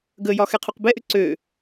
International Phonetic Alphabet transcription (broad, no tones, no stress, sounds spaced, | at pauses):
ɡ ə j ɒ x ɛ qʰ u q b ɛ ʔ ʏ ǀ ø